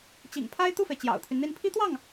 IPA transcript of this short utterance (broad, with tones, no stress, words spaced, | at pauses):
t͡ɕḭ˨˩ŋpʰa˥ɪ̯ t̪u˥˩fe˩ɪ̯ t͡ɕjɑ̰˨˩ʊ̯t̪ʰy˦nn̪i˥˩n pʰi˥t̪wɑ˥˩ŋ